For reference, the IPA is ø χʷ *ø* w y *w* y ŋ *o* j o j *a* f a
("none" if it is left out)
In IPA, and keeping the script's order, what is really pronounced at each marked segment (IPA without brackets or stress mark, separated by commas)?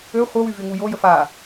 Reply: œ, v, u, ə